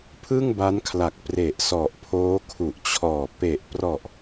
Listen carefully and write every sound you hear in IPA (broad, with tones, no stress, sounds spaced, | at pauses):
pʰ ɯ˥˩ ŋ b a˦˥ n kʰ l a˨˩ k̚ p r e˨˩ ʔ s ɔ˨˩ ʔ pʰ oː˦˥ kʰ u˨˩ ʔ t͡ɕʰ ɔː˨˩ p e˨˩ ʔ p r ɔ˨˩ ʔ